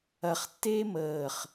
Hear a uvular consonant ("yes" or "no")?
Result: yes